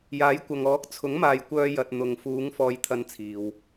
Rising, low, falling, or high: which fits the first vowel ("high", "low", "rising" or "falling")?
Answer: rising